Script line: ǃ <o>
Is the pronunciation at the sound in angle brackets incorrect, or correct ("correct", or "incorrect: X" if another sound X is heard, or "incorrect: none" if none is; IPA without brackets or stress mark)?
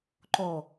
correct